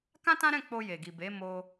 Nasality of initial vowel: nasal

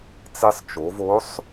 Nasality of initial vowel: oral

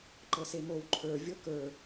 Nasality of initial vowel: oral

